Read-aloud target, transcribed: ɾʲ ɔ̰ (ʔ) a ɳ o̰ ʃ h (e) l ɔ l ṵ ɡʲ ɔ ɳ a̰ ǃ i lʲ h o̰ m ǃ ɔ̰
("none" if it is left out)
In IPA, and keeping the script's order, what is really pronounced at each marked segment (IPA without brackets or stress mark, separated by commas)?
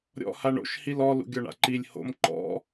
h, i